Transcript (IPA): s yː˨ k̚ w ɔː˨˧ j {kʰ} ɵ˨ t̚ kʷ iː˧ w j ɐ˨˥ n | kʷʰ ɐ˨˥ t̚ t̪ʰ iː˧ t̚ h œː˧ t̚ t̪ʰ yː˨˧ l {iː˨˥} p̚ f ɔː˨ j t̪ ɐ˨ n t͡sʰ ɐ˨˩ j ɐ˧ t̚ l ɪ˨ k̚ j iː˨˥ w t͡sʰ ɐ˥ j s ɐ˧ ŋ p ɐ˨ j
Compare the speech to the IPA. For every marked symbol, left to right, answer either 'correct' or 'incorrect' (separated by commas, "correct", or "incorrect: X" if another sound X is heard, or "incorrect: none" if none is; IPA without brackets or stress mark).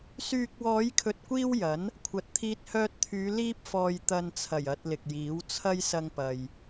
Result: correct, incorrect: iː˥